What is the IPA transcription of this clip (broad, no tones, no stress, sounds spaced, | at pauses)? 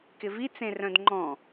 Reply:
k ɪ v i t͡s ẽ r œ̃ d ŋ͡ǃ ɔ̃